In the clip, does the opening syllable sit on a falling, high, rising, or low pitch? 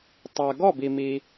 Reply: low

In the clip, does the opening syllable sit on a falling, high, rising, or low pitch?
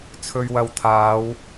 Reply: low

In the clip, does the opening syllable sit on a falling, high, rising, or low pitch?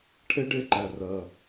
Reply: high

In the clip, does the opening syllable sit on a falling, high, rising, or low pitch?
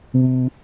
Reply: high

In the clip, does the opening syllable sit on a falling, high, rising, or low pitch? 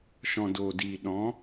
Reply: low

